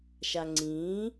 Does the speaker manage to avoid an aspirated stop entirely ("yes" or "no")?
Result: yes